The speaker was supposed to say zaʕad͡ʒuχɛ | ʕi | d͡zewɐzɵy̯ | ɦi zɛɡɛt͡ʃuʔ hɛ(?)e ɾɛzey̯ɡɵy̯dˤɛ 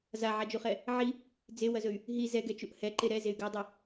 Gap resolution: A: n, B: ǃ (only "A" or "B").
B